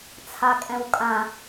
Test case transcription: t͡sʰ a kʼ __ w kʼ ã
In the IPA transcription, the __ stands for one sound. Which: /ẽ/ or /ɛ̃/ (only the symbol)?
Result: ɛ̃